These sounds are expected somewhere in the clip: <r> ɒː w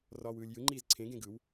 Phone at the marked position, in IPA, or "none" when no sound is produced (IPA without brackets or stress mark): r